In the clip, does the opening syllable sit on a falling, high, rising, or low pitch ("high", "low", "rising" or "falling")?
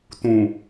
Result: low